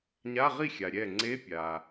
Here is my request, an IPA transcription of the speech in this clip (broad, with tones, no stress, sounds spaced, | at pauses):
ɲ a˧˥˧ ʁ i˥˩ xʲ a˨ ɾʲ ɛ˥˩ ŋ͡ǀ e˧˥˧ pʲ a˨